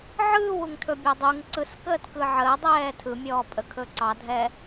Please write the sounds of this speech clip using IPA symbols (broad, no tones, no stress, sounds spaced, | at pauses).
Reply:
ʕ ɯː w u ŋ tʰ ɵ bʲ ɛ dˤ u ŋ ǀ ɯ s k əː t k ɯ ʕ əː dˤ ɛː tʰ ɯ mʲ ɔː pʼ ə kʰ ɵ ǀ ɑ dʱ ɛ